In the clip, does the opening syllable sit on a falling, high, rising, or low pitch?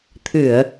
low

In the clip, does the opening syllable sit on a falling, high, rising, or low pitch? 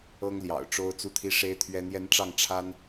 high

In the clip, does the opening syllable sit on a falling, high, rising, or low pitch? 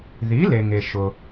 rising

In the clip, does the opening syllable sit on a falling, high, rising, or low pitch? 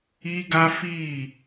high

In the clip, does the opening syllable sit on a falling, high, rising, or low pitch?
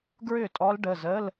falling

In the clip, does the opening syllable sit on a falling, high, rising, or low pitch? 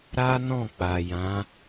high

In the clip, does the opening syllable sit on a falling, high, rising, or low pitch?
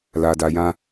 low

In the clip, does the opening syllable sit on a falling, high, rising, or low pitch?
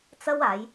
high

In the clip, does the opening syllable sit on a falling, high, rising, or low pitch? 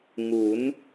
rising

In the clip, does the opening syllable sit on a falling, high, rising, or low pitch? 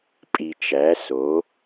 low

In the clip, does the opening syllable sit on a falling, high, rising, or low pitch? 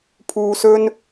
low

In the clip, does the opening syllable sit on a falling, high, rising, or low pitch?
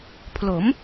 rising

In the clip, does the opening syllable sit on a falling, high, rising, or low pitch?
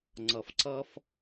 low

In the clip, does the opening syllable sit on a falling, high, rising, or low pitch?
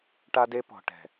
high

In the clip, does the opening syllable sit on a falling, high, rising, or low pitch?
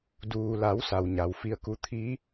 low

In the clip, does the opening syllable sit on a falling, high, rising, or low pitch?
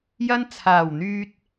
high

